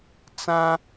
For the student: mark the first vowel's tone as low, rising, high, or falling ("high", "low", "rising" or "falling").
high